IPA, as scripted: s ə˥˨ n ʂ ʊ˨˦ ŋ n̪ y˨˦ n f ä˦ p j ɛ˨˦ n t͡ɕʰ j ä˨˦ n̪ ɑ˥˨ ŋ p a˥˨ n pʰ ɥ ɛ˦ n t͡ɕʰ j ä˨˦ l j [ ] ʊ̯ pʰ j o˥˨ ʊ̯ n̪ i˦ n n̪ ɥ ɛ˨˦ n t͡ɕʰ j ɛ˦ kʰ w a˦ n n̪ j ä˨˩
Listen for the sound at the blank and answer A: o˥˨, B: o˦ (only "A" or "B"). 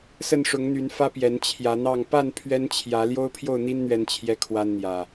B